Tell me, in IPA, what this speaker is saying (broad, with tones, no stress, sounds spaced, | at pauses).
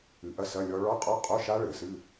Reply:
ɨ˨˩˦ ʔ ɐ˦˥ s ɐ˧˥˧ lʲ ɔ˦˥ ɭ ɔ˧˥˧ qʼ ɔ˧˥˧ qʼ o˧˥˧ ʃ a˦˥ ɭ ɘ˨˩˦ s ɨ˧˥˧